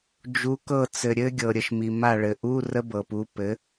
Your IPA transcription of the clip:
d͡ʒ u˨˥ k ɤ˦˨ t͡s ɘ˨ ɾʲ ɘ˦˥ ɡʲ ɤ˨ ɾʲ ə˨ ʃ m i˨ m a˦˨ ɭ ɘ˨ ʔ u˧˥˧ r ə˦˥ b ɤ˨ p u˨˥ p ɘ˨˥

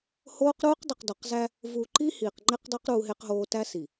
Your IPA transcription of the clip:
h oː˦ q ɾ uː˦ q dˤ i˨ q d ɒ˨ q z æ˦ | v u˨ ǃ i˦ h iː˨ q ŋ͡ǃ e˦ q dˤ e˦ q ɾ uː˦ ɦ e˦ q ɦ oː˦ t æ˦ s i˨

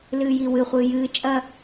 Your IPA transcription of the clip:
l ɨː j i w ɨ χʷ ɨː j ɨː t͡ʃʼ ɐ

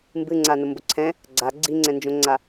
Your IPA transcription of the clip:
m b ɨ ŋ͡ǀ a n ʊ m b ʊ ǀʰ ɛ̃ | ɡ͡ǀ a ɡ͡ǀ i ŋ͡ǀ ɛ̃ n d͡ʒ õ ŋ͡ǀ a

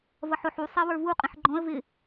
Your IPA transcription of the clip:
v ʌ ħ ʊ ħ u sˤ i w ə˞ v u qʼ ĩ ħ ɡ͡ǃ ɔ̃ ə̯ v ɪ

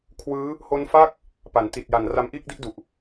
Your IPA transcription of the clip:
kʰ w ɯː˦˥ | h o˦˥ n f a˥˩ k̚ | p a˩˦ n t i˨˩ t̚ j a˨˩ n r a˧ m ʔ iː˥˩ k̚ d i˥˩ ʔ d u˨˩ ʔ

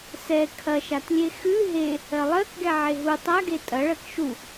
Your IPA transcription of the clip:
s ɛ kʰ ɐ ʃ a t lʲ e x ʉ ɦ e | ɜ lˠ ɜ k ɡ ɛ ʕ e ɦ u tˤ a ɡ e tʼ ɐ ɭ ɜ k ʃ u

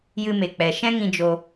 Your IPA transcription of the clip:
j ɨ˧ m e˨ k͡p ɛ˨ ʃ ɛ̃˦ ŋ ĩ˧ d͡ʒ o˧

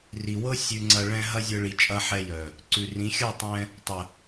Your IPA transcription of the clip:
r i˨ w ɤ˦ sʲ ʉ˧ ŋ͡ǀ ɐ˧ ɭ ɛ̃˦ ɦ ɐ˦ zʲ ɤ˧ ɭ i˨ t͡ʃʼ ɐ˧ ħ ɛ˧ j œ˨ | ǀ ʉ˨ r ĩ˨˦ xʲ ɤ˦˨ tˤ ɛ̃˧ | tˤ ə˨

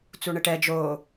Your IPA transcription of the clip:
t͡s u ɳ ɪ ʈ ɛ d͡ʒ o

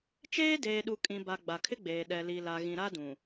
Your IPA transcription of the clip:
t͡ʃ eː˦ d eː˨ ɗ u˨ kʼ ĩ˨ b a˨ ɡ͡b a˨ kʰ ɪ˦ ɡ͡b eː˨ ɗ ɛ˨ l i˨ l a˨ ɣ ĩ˨ ɾ a˦ d ũ˨

